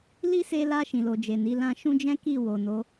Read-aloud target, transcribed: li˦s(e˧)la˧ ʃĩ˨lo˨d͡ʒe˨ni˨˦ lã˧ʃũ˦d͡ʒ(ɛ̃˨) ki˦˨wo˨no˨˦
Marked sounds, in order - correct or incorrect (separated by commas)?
correct, incorrect